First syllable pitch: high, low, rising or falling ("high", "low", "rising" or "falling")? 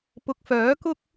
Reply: rising